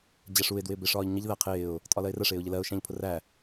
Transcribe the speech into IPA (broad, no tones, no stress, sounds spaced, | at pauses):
d͡ʑ æ ʂ u ɪ̯ d w ɪː b ɪ ʂ ɒː ʎ ɲ ə ʎ ð æ qʰ ɪː ʊ̯ | tʼ ɒ l ɜ ɪ̯ r ə ʂ ɪː ʊ̯ ʎ ɪ l ɜ ʊ̯ ʃ æ̃ ʎ pʰ ʊ r æ